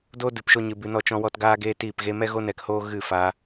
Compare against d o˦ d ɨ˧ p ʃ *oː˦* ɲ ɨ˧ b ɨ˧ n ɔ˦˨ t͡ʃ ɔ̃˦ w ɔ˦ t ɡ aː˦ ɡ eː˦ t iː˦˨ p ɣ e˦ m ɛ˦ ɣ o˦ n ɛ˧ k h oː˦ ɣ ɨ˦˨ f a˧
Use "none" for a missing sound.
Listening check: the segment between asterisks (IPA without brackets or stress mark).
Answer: o˦